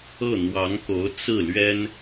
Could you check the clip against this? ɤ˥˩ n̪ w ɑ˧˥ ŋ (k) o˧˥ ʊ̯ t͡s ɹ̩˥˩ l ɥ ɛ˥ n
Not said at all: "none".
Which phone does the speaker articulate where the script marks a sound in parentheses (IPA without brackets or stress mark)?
k